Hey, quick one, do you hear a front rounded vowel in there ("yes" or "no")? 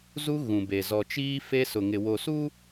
no